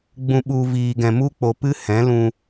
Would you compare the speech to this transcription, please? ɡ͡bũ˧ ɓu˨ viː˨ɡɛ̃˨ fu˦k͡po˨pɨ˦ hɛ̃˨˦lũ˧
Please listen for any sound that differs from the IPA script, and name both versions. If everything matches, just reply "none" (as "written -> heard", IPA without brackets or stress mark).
f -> m